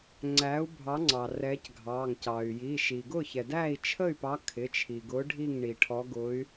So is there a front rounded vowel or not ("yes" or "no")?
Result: yes